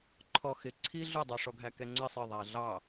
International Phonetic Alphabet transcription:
ǃʰɔxɪ ǀʰiɮʊdˤʌ ʂɔɡʱækɛŋ͡ǀɪ sˤɪ ðˤæɮɑ

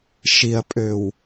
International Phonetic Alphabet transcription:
ʃiɐ̯pʼøw

